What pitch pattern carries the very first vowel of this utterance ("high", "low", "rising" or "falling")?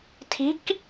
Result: rising